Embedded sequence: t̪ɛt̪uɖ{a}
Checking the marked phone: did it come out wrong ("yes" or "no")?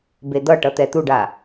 no